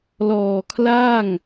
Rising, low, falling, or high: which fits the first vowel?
low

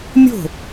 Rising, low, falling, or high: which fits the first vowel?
falling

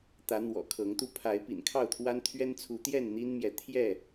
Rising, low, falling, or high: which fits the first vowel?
rising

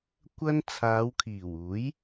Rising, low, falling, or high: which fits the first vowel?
high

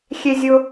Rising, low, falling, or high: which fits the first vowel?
high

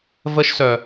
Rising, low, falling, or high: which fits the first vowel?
high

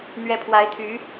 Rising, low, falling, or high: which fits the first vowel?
rising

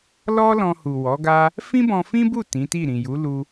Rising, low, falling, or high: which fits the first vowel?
high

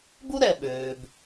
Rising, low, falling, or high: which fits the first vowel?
high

